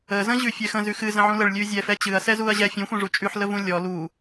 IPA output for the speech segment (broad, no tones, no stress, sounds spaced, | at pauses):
ə z ə̃ ʑ ʉ fʲ ɛ x ə̃ z ʉ x ɨ z ə̃ ʕ ũ l ə ɭ lʲ ʉ zʲ ɛ f ɛ t͡ɕ ɨ ɐ̯ s ɛ z u ɐ̯ ʑ ɛ fʲ ũ xʷ ɛ̃ ʐ u t͡ʃʼ ʉ ħ l ə v ũ lʲ ɔ l u